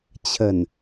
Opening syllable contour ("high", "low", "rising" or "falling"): low